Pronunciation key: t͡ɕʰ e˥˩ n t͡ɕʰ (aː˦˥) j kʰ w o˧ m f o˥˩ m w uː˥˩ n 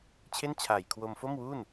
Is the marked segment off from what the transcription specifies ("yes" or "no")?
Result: yes